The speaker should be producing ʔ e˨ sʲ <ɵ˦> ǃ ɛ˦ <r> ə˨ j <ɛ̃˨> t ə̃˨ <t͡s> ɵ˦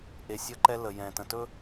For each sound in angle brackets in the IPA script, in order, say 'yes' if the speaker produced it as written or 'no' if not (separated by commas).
no, no, yes, no